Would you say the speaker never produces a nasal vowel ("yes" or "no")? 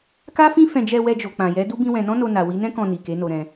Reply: no